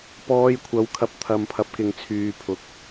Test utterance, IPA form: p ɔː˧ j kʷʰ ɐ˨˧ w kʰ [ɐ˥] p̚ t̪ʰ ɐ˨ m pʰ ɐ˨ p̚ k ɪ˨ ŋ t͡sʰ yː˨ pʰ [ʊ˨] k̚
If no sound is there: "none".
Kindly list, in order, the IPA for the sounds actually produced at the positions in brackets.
ɐ˧, ʊ˨

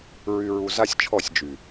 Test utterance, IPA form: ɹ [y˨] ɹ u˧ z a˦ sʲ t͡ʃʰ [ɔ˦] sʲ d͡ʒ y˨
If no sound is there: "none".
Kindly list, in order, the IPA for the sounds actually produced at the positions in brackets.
y˧, ɔ˦˨

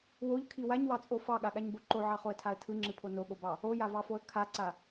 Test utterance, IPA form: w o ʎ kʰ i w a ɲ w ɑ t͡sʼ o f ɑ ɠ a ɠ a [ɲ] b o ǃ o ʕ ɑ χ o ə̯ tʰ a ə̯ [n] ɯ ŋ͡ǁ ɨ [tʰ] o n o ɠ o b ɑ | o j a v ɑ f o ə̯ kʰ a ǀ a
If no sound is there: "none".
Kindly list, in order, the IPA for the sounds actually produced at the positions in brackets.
ɲ, tʰ, pʰ

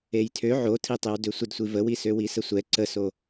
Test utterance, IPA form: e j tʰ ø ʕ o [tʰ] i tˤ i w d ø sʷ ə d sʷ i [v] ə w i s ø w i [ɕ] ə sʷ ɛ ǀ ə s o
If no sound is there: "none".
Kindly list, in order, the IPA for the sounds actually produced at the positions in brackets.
tʰ, v, s

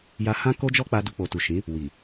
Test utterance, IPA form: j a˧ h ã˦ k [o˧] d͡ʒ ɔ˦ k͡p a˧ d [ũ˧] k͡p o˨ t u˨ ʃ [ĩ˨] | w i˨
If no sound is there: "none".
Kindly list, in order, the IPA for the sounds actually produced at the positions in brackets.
o˦, u˧, ĩ˨˦

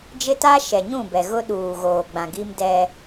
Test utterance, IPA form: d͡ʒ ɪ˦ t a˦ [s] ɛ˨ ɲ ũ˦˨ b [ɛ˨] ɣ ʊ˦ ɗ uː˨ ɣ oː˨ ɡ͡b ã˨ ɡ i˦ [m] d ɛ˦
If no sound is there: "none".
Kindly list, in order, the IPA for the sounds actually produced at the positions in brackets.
ʃ, ɛ˨, m

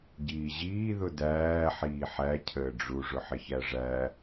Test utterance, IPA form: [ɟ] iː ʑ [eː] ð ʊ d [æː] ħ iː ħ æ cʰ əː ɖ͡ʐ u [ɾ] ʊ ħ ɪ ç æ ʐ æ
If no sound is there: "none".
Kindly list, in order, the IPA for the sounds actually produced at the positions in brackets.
ɟ, iː, æː, ʐ

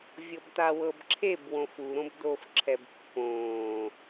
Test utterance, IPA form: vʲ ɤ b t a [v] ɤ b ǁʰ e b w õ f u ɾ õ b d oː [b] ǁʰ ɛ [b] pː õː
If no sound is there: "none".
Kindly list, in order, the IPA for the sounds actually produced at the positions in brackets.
w, f, b

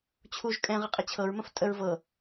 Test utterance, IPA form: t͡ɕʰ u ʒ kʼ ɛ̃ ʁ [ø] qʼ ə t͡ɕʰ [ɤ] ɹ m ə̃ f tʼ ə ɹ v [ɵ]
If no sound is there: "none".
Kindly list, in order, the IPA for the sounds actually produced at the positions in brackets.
ə, ɤ, ɤ

